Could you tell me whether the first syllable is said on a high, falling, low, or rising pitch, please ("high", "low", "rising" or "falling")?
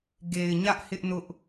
low